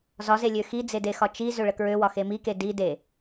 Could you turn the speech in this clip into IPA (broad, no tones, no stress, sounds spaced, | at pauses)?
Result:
z ɒ z e lʲ ø x i d͡z e d e x ɒ t͡ʃ i z ø ɭ ə k ɹ ø w ɒ x e m i k e d i d e